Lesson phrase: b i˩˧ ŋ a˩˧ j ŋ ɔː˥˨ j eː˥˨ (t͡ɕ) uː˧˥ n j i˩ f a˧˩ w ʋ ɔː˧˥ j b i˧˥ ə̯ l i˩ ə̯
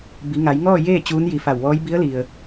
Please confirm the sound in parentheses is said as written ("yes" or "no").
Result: yes